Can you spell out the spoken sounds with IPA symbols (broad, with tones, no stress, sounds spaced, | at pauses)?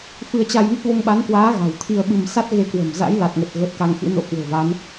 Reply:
f ɨ˧ ə̯ t͡ɕ a˧ j n ə˦˥ t̚ v o˧ ŋ ɓ a˨˦ n k w aː˨˦ ɣ a̤˨˩ w t̪ʰ i˧ ə̯ ɓ ɨ˧ m s a˦˥ t̚ ɣ e˧ k w ə̤˨˩ m z a̰˧˥ j l a˨˩ t̚ ŋ ə˨˩ t̚ ɣ ə˨˩ t̚ k a˧ ŋ x ɨ̰˧˥ n o̰˧˥ k w o̤˨˩ v a˨˦ n